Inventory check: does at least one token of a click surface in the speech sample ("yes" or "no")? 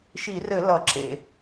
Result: yes